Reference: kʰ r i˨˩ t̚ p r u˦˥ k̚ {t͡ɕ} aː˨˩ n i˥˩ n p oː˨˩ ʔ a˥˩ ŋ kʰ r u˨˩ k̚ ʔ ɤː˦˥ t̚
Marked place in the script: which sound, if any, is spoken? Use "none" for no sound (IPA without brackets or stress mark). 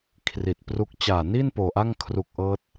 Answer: t͡ɕ